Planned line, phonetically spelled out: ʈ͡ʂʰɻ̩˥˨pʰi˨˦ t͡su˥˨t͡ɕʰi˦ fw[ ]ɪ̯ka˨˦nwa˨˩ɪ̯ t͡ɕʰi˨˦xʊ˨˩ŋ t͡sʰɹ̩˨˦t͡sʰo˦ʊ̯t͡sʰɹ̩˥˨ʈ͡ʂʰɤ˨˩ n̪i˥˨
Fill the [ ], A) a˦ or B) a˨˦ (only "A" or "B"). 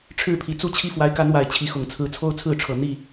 B